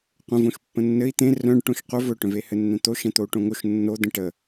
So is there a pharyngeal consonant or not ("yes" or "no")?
no